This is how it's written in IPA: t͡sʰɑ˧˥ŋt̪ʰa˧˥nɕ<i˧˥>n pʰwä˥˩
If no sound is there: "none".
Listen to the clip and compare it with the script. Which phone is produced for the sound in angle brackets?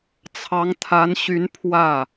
y˧˥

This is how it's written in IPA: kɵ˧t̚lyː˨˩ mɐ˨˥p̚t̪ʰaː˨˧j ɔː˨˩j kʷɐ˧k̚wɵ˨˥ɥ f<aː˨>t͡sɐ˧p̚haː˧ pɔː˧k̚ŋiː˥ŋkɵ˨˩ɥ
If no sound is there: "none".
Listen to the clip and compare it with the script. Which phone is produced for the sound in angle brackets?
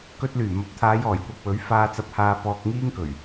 aː˧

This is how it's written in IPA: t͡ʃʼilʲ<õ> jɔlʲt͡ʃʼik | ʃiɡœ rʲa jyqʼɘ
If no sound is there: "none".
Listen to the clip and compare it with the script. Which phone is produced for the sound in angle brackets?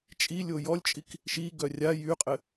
o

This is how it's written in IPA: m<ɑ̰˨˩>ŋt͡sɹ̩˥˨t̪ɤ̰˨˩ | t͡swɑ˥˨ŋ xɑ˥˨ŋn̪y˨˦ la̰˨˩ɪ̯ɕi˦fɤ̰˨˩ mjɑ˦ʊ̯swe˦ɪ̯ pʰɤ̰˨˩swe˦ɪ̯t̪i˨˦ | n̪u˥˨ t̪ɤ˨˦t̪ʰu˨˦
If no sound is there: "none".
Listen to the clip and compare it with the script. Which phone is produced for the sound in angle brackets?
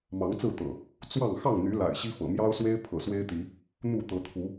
ɑ˨˦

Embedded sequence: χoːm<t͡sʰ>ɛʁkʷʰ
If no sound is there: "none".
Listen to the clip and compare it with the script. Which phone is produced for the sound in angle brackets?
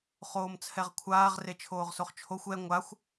t͡sʰ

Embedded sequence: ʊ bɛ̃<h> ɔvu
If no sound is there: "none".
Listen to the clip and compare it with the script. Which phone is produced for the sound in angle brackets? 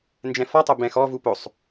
x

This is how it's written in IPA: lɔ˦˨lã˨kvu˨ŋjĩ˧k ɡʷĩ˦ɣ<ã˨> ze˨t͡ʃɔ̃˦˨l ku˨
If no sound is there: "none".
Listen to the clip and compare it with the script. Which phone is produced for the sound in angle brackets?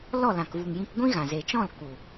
ã˨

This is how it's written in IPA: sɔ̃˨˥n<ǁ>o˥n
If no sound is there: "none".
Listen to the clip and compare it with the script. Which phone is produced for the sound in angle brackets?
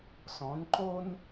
ǃ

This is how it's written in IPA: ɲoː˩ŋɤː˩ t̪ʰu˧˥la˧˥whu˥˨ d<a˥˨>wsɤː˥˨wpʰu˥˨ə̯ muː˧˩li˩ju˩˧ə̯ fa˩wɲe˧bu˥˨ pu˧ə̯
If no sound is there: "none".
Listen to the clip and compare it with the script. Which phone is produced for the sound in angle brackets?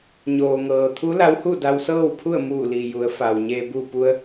a˧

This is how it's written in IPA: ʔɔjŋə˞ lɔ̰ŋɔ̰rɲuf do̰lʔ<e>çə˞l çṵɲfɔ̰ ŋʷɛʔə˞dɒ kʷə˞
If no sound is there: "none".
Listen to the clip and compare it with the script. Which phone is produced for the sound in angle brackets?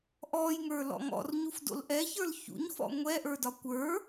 ɛ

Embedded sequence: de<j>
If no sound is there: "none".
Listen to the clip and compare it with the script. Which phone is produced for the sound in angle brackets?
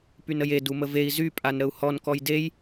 j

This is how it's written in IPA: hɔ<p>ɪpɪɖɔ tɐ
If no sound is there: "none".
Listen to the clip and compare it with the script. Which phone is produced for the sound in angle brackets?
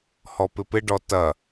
p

